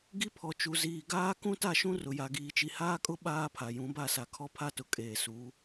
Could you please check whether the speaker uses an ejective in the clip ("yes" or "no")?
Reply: yes